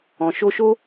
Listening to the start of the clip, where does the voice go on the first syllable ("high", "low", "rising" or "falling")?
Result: low